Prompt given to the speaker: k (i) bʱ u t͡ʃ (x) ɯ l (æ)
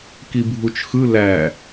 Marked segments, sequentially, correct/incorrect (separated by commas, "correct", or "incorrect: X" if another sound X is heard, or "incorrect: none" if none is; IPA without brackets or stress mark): correct, correct, correct